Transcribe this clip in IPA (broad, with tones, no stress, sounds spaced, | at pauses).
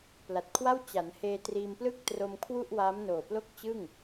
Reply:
p l a˨˩ t̚ kʰ w a˥˩ w t͡ɕ a˩˦ n h eː˧ t r iː˧ m p l ɯ˥˩ k̚ t r o˧ m kʰ w u˥˩ ʔ w aː˦˥ m n oː˨˩ p l o˥˩ k̚ t͡ɕ ɯ˥˩ ŋ